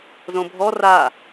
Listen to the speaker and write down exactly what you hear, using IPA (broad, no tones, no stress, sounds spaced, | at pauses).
z õ bʱ ɔ r a